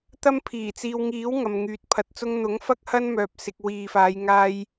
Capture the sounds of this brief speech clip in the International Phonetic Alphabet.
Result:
t̪ ɐ˥ m pʰ iː˨˩ t͡s iː˨ w ŋ iː˨˥ w ŋ ɐ˨ m ŋ yː˨ t̚ pʰ ɐ˨˥ t̚ t͡s ʊ˥ ŋ n̪ ʊ˨˥ ŋ f ɐ˥ k̚ h ɐ˥ n m œː˨ p̚ s ɪ˨ k̚ w iː˨ f aː˨˧ j ŋ aː˥ j

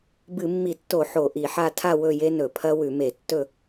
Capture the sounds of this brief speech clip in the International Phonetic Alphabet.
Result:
b ɨ˧˩˧ mː i˧˩˧ tː o˧˩˧ ħ o˧˩˧ ʔ i˧˩˧ ħ a˥˨ tʰ a˥˨ w ɵ˥˨ j e˦˥ n ɵ˧˩˧ pʰ ɐ˦˥ w ʉ˧˩˧ m e˧˩˧ tː ɵ˥˨

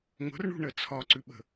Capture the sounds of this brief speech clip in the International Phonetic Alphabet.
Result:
ŋʷ ə̤ r ɳ ṳ ɳ ə t͡sʰ ɒ ǀ ʉ ɓ ə̤

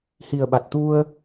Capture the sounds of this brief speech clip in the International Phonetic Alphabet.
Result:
h i˨˩ ə̯ ɓ a˨˩ t̚ t̪ u˧ ə̯

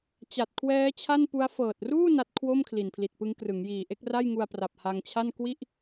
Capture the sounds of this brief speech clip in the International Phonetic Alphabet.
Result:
t͡ɕ a˨˩ t̚ kʰ w ɛː˦˥ t͡ɕʰ a˥˩ n p u˦˥ a̯ f ɤː˨˩ t̚ r uː˥˩ n a˦˥ t̚ kʰ w o˥˩ m kʰ l i˨˩ n pʰ l i˨˩ t̚ p ɯ˦˥ ŋ k r ɯ˩˦ ŋ j iː˨˩ ʔ e˦˥ k̚ r a˥˩ j ŋ u˧ a̯ p r a˨˩ p̚ h a˧ ŋ t͡ɕʰ a˥˩ n k w i˥˩ ʔ

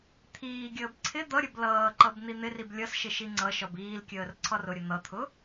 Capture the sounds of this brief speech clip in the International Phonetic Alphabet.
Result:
t̪ʰ iː ɡʲ əː b ǀʰ ɪ d̪ ʌ ɾʲ ə b l ʌː ǃ ʌ b n̪ i n̪ ɪ r i b lʲ ʌ s ʃ ɪ ʃ i ŋ͡ǀ ʌ ʃ ɒ b iː l kʲ əː r ǀʰ ɒ r ʊ ɾʲ ə n̪ ʌ t̪ʰ ʊ

